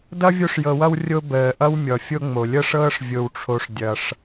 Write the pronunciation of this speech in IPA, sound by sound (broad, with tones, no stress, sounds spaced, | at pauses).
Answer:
d ʌ˥ vʲ o˦ ʂ j ɤ˨ w ʌ˦ w rʲ o˦ b əː˩ ʔ ʌ˥ w mʲ ɔ˩ fʲ o˦ ŋ͡m o˩ lʲ ɤ˥ ʂ ɤː˥ ʂ vʲ o˨ w ʈ͡ʂʰ o˨ ʂ dʲ ʌ˩ ʂ